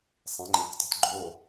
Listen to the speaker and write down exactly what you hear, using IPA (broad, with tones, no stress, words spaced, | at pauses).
sˤẽ˨˦ŋ͡ǃẽ˨˦ktˤə̤˨˦t ɡ͡ǃo˥˨